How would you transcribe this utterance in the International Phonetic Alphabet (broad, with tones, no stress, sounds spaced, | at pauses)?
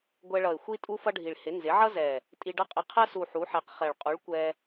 ɡʷ ɛ˧ ɭ ʌ˨˩ ɪ̯ xʷ i˥ tʼ u˥ f ʌ˥ ɖʱ i˨˩ ɭ h ɪ˩˥ n z ɪ˩˥ ʕ ʌ˥ z ɛ˨˩ | tʼ i˧ ɖ ʌ˥ qʼ ɪ˧ qʰ ɜ˥ s u˨˩ ħ u˩˥ ħ ɛ˩˥ q χ ɛ˨˩ ɭ qʼ u˩˥ ɭ kʷ ɛ˧